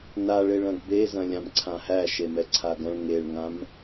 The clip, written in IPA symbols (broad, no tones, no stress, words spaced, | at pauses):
naɭeɭ ɐ̃ɡbezɐ̃ lʲãmǀʰãhæʃe mɛǀʰaɡɐ̃ɭ ŋeɭŋãm